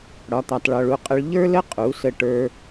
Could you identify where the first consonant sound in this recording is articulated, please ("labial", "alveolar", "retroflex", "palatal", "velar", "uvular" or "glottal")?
retroflex